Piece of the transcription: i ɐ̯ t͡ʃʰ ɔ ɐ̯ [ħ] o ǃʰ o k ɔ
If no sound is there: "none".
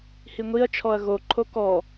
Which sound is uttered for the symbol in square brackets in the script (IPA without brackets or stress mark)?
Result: ɣ